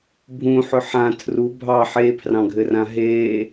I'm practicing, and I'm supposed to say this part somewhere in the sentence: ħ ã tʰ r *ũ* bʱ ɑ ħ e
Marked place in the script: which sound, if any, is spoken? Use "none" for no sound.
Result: u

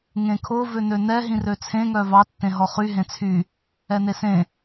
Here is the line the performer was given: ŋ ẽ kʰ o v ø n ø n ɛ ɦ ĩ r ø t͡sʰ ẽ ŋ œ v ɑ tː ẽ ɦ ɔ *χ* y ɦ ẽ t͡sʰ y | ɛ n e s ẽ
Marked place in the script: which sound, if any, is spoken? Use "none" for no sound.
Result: χ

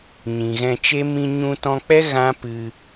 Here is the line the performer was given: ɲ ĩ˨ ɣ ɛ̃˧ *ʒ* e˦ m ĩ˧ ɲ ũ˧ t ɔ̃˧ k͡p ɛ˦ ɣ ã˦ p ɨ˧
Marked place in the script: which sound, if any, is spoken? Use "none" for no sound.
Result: t͡ʃ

